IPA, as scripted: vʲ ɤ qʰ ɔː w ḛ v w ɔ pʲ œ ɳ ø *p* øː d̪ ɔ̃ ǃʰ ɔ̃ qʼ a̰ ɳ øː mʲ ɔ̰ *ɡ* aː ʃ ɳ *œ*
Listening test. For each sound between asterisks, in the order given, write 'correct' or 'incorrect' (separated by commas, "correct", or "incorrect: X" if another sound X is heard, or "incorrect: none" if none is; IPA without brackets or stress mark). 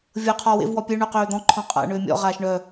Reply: incorrect: q, incorrect: ʁ, correct